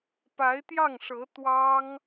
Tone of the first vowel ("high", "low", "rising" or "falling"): rising